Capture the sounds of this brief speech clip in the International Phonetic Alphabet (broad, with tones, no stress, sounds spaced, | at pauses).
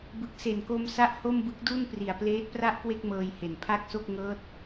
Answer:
b ɯ˨˩ k̚ s e˨˩ n k o˧ m s a˥˩ ʔ h o˥˩ m b ɯ˦˥ k̚ d u˥˩ n p r i˨˩ a̯ p l eː˦˥ t̚ p r a˥˩ ʔ k w e˥˩ k̚ m ɤː˧ j h e˨˩ n pʰ a˥˩ k̚ s o˥˩ k̚ ŋ ɤː˦˥ t̚